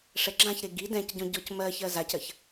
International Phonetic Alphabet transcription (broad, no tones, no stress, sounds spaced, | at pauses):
ʂ ɛ ɡ͡ǁ ã ç ɾ e ɡ i d ɛ̃ c ɟ ɔ̃ ɟ ɔ c m ɜ ç ɜ z a c ɜ ç